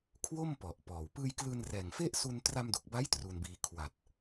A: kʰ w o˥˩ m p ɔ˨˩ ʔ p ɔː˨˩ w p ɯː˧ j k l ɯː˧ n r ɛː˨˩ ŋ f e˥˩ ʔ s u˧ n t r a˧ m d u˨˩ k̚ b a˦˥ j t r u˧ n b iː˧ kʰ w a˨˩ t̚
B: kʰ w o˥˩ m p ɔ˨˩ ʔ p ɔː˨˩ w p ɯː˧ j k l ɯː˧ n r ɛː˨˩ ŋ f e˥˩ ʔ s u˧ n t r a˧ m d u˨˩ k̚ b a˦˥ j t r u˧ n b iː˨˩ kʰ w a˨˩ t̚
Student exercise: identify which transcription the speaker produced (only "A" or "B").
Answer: A